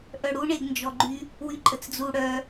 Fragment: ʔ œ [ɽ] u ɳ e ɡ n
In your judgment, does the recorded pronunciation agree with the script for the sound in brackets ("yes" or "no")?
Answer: yes